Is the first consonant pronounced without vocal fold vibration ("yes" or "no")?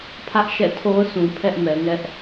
yes